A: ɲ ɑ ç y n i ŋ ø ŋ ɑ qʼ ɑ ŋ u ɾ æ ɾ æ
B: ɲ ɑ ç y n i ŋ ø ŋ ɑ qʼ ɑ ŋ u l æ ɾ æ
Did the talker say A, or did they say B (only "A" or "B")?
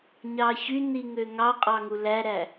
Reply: B